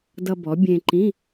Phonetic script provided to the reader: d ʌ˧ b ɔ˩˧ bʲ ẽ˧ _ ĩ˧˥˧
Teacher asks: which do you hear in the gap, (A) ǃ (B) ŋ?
A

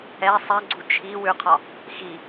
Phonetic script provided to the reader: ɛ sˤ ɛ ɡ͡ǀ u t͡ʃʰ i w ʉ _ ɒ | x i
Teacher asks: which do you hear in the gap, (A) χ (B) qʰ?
B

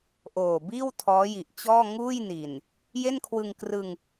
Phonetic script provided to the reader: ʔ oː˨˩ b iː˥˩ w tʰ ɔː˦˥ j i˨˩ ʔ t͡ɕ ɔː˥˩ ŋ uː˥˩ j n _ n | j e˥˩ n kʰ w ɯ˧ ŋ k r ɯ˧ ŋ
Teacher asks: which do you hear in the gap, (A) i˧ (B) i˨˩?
B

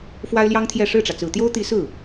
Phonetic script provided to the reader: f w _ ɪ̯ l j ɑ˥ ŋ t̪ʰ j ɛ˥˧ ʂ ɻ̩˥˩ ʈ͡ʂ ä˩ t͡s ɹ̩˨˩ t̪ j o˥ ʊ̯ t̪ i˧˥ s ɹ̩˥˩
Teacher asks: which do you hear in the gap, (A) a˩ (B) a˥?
B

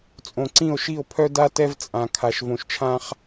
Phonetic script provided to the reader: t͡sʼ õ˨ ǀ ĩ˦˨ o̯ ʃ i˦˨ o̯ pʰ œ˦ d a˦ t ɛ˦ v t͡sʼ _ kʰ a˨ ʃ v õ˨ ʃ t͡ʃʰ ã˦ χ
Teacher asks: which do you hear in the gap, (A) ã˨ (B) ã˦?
A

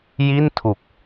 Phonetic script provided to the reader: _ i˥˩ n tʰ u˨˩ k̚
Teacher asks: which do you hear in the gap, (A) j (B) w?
A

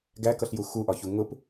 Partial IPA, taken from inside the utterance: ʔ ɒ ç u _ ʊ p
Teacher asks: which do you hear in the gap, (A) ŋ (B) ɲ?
A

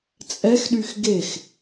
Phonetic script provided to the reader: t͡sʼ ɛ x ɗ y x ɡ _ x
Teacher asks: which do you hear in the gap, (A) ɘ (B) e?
B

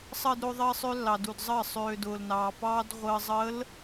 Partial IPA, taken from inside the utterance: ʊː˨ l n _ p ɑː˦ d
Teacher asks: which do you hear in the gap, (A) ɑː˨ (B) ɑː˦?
A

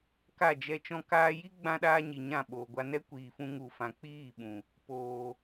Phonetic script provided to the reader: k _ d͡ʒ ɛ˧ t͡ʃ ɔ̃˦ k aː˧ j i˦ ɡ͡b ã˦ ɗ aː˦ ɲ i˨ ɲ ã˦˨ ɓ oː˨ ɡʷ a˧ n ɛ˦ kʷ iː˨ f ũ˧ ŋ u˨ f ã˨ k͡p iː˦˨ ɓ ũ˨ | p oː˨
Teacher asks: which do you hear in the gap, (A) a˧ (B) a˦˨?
B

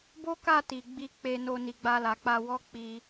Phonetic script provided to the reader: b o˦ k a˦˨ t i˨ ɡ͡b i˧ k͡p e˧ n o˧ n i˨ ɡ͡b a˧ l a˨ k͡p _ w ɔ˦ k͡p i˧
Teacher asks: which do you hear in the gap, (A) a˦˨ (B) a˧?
B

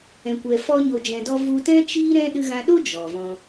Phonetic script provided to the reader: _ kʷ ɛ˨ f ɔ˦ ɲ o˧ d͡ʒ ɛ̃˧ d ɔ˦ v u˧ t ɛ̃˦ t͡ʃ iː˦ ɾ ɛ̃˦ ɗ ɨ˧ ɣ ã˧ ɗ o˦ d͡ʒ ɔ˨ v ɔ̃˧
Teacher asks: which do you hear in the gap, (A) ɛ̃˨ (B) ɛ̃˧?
A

